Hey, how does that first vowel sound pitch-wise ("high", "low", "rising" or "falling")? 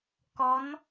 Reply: rising